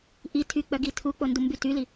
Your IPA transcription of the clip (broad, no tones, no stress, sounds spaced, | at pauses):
ʔ i tʰ y k͡p œ ɡ i tʰ u k͡p o n d u m b y t y l i